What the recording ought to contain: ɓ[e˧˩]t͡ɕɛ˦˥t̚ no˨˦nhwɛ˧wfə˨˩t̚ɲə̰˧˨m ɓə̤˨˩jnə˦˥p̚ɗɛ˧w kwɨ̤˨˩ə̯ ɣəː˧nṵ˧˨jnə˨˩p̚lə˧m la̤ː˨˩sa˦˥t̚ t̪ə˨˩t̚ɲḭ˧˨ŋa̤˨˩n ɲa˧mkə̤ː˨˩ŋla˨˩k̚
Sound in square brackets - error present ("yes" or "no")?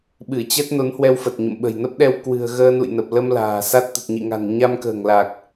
yes